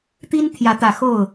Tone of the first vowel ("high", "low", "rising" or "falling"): high